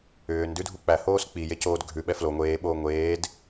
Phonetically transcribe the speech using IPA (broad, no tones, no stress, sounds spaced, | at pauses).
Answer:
ʏː n d ʉ dʱ u k͡p æ h oː s k͡p i j e c oː d ɡʱ ʉ ɓ ɛ f l o ŋʷ eː ɓ oː ŋʷ eː d